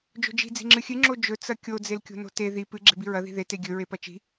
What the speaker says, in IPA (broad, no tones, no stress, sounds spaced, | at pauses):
d͡ʒ o̤ d͡ʒ i̤ d͡z i̤ ŋ͡ǁ ɨ xʲ ɨ ŋ͡ǁ o d͡ʒ ɵ t͡s ɐ kʲ o d͡z e l kʲ o̤ n o̤ t e ð i p ɨ ɡ͡ǁ e̤ b i ɹ ɐ ð i̤ ð e t e ɡʲ ɵ ɹ e p ɐ t͡ʃ i̤